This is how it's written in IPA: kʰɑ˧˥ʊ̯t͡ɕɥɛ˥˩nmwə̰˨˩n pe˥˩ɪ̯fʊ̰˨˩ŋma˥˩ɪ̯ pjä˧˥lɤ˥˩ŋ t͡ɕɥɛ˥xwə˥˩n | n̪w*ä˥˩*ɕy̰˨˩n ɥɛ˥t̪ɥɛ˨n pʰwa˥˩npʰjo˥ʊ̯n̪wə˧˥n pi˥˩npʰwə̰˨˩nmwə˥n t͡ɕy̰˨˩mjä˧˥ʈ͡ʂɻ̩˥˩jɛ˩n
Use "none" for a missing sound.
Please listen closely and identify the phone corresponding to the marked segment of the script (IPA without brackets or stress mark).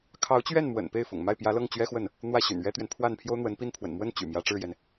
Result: ä˥˩